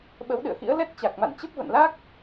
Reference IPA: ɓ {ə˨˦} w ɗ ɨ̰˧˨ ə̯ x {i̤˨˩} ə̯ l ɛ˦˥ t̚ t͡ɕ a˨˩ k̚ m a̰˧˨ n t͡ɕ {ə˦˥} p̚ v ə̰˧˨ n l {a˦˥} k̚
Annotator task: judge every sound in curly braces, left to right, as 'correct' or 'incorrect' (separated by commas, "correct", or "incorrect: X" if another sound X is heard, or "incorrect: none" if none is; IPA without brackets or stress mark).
correct, incorrect: ḭ˧˥, correct, correct